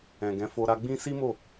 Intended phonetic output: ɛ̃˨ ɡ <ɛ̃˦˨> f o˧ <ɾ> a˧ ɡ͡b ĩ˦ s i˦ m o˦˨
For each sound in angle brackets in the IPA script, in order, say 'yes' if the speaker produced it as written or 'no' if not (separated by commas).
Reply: no, yes